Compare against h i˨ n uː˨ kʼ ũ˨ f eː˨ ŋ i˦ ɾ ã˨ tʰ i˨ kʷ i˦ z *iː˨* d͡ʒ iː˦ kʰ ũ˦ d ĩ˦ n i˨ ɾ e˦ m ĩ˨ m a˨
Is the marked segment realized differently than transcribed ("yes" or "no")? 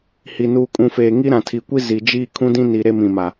yes